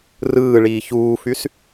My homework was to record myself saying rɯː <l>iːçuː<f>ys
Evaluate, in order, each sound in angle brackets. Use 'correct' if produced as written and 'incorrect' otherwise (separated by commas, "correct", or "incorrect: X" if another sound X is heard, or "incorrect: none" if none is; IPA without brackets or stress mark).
incorrect: ɭ, correct